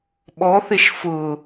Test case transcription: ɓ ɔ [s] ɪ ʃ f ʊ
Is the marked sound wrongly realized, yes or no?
yes